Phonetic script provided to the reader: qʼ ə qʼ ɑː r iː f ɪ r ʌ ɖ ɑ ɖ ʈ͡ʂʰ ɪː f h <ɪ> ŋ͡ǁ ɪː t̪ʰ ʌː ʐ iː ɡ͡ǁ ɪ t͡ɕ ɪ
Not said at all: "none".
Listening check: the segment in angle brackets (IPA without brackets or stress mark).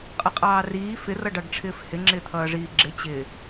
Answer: ɪ